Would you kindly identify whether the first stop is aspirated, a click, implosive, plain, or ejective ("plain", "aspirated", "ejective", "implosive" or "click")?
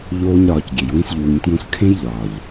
plain